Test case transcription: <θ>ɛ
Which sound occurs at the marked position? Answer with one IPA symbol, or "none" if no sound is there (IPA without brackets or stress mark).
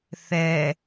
θ